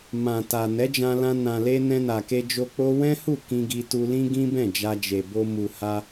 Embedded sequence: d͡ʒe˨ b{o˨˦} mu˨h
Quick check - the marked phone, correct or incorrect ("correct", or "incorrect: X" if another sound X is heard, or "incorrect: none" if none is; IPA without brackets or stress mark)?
incorrect: o˧